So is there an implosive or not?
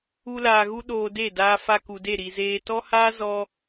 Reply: yes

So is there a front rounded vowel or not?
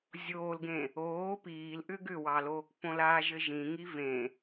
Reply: yes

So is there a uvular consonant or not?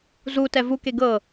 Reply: no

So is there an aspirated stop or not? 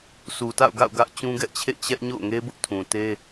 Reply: yes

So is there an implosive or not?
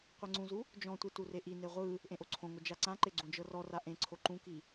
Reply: no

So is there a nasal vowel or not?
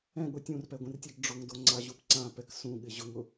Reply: yes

